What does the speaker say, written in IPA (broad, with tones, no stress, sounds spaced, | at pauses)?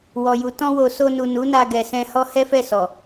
w ɔ˨ j u˨ t ɔ̃˧ w o˨ s o˧ n u˨ n u˨˦ n a˧ ɡ ɛ˨ s ɛ̃˧ h ɔ˦ h ɛ˦ f ɛ˦˨ s ɔ˨